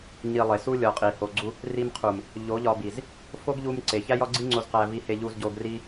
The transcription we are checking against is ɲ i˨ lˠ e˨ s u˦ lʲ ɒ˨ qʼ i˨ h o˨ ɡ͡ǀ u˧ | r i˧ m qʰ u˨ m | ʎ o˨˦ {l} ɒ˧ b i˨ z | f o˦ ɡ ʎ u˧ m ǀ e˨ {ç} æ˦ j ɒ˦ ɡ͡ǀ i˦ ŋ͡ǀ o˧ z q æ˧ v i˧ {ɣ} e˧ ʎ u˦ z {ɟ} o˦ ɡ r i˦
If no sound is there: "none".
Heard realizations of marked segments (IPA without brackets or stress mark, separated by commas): ʎ, ç, h, ɟ